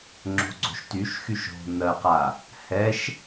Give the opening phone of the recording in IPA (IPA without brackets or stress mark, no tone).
ŋ͡ǁ